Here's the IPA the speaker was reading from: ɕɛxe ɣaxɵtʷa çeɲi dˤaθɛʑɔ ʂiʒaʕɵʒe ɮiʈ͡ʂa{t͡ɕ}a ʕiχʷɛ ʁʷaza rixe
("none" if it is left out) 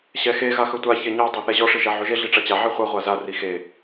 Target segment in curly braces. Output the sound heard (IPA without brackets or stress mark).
t͡ɕ